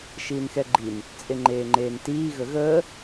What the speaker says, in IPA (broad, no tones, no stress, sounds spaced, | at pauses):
ʃ iː n x ɛ ɡ͡ǃ i n | t͡sʼ e ŋ͡ǃ eː ŋ͡ǃ eː n t iː ɣ ə ɣ əː